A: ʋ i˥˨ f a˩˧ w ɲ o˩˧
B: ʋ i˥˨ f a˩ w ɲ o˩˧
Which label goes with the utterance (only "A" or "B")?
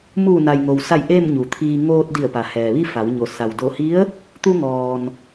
A